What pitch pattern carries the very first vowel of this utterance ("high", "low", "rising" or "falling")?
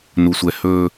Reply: low